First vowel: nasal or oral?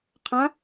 nasal